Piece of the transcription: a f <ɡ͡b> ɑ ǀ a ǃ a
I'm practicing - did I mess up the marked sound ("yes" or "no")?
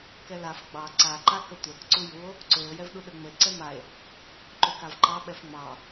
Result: no